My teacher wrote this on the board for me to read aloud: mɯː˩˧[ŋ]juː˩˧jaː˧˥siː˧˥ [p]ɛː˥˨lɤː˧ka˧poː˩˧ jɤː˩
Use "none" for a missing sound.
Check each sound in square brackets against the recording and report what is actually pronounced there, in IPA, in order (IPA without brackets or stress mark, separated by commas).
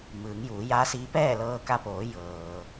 ŋ, p